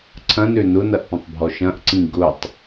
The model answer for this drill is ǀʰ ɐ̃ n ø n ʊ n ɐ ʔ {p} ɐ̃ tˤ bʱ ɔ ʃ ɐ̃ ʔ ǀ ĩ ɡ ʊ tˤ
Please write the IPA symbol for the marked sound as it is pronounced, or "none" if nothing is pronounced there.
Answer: p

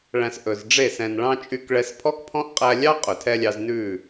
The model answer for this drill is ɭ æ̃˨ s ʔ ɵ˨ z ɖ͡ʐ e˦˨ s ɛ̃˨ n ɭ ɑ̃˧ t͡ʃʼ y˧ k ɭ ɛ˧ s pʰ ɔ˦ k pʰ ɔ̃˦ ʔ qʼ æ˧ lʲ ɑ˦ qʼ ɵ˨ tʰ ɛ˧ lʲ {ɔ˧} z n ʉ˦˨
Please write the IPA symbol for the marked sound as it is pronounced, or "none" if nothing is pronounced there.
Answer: ɑ˧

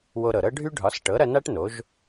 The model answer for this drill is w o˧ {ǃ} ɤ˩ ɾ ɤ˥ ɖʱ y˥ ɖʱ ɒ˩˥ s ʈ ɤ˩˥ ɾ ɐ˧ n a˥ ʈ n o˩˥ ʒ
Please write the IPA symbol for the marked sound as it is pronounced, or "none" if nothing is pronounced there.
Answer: ɾ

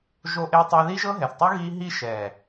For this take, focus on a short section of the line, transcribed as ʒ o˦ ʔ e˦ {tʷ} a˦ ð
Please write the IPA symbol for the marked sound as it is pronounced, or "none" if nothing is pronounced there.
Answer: tˤ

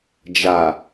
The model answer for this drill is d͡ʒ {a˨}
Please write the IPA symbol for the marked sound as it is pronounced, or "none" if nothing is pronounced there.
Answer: a˨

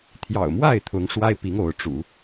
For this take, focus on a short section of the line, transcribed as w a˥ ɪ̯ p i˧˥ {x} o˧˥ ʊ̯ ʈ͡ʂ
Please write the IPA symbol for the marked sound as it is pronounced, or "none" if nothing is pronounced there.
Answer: ŋ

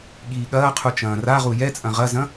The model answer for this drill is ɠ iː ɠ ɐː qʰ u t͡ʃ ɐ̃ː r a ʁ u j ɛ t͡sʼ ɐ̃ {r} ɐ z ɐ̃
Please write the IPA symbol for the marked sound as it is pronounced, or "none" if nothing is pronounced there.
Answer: ʁ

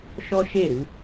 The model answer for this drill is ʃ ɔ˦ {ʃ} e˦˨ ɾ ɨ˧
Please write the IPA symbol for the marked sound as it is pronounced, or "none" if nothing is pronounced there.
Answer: ʃ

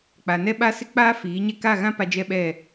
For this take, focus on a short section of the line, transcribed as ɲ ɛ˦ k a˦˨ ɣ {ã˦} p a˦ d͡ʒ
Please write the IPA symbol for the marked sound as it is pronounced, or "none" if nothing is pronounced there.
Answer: ã˦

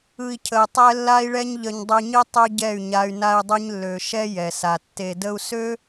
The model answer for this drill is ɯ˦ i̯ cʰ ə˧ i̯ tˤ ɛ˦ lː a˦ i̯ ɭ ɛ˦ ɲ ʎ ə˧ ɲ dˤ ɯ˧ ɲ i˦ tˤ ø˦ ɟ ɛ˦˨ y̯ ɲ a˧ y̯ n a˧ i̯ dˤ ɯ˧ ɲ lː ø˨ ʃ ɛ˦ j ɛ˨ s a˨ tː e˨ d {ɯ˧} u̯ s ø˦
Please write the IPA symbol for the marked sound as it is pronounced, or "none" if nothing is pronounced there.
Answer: ə˧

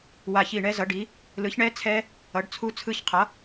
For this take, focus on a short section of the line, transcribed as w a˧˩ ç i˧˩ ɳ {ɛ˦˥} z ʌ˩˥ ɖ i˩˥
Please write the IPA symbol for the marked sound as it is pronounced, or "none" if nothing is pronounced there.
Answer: ɛ˦˥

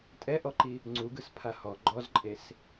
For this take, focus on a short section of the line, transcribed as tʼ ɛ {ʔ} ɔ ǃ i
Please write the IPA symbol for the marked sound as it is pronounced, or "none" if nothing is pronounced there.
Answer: ʔ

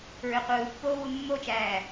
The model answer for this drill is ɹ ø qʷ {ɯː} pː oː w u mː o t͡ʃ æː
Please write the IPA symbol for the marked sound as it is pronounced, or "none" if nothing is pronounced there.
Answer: ɯː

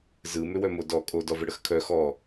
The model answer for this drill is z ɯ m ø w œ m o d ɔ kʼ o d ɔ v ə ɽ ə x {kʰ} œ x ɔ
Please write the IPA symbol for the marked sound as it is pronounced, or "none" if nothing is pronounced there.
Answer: kʰ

